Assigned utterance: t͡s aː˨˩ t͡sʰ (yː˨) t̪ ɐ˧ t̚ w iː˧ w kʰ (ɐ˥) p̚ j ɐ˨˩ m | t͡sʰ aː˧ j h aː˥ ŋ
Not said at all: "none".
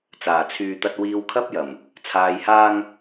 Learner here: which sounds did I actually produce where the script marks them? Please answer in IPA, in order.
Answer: yː˨, ɐ˥

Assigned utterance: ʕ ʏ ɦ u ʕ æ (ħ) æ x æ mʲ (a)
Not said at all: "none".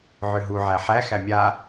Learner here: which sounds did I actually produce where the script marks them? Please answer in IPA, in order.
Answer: ħ, a

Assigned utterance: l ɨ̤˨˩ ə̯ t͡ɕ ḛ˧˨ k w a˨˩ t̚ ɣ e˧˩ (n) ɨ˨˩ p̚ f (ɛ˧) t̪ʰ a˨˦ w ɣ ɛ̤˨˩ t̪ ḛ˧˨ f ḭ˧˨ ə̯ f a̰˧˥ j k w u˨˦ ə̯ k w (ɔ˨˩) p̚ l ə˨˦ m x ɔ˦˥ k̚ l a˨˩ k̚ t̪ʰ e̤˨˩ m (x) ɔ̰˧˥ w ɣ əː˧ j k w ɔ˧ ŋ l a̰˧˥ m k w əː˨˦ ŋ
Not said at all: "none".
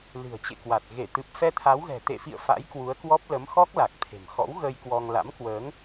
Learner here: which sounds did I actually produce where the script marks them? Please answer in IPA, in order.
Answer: t̪, ɛ˧, ɔ˦˥, x

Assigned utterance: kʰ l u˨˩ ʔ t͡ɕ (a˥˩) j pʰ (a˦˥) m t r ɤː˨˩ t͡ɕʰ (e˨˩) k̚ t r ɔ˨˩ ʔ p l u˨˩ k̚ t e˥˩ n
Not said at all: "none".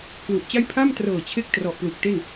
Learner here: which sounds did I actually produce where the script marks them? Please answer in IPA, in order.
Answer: a˥˩, a˥˩, e˦˥

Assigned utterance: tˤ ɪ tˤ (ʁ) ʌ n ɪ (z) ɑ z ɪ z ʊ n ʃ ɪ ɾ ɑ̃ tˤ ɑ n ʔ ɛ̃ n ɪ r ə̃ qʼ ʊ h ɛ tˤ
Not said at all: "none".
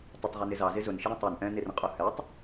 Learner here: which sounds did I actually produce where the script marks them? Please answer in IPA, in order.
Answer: ʁ, z

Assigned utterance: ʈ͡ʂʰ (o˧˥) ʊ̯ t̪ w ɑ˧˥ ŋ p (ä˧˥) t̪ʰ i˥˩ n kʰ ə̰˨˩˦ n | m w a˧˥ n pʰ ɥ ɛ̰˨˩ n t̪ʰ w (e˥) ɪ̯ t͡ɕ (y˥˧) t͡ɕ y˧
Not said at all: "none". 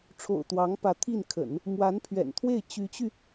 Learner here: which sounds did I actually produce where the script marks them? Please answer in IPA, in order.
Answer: o̰˨˩, ä˧˥, e˥˩, y˧˥

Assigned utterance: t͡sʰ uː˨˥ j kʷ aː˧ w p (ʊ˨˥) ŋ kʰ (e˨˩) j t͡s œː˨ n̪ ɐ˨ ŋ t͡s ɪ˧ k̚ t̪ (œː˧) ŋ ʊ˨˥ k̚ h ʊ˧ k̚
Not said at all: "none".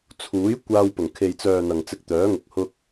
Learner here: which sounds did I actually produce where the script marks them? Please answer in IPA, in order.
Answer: ʊ˨˩, e˨, œː˨˥

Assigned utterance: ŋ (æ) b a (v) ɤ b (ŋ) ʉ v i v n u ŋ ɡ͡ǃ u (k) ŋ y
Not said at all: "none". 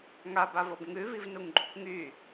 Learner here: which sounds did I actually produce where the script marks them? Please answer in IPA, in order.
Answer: a, v, ŋ, k

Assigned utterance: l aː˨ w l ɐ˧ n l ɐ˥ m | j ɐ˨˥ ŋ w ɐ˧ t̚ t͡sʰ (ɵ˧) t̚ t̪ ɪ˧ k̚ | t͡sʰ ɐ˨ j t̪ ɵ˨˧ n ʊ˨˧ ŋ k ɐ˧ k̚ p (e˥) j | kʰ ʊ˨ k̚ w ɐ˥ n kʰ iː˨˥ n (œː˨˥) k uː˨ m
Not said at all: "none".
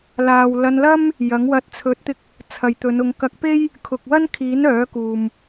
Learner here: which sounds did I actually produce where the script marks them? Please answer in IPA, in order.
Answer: ɵ˨˥, e˥, œː˨˥

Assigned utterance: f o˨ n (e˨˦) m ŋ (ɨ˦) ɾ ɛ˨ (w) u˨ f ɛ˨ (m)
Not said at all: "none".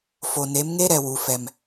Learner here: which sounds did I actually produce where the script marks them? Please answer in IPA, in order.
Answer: e˨˦, e˦, w, m

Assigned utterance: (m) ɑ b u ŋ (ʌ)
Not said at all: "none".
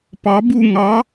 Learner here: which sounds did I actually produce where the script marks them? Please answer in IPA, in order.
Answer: p, ɑ

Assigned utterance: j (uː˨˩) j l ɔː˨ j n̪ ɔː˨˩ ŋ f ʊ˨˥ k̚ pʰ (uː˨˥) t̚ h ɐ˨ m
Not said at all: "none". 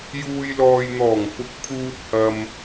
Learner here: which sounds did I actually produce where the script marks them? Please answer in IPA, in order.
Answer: uː˨, uː˨

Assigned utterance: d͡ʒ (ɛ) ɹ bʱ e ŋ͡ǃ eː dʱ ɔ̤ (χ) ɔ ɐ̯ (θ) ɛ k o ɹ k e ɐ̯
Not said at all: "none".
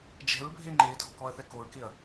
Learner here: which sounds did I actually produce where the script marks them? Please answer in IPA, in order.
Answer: ɛ̤, k, θ

